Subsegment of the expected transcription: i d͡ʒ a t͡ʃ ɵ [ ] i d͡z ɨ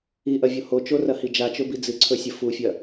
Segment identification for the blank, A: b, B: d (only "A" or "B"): A